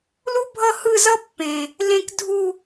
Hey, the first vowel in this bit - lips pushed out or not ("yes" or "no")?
yes